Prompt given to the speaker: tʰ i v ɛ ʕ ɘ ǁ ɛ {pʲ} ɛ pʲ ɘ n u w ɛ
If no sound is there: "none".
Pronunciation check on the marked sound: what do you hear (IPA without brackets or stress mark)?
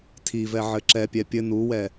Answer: pʲ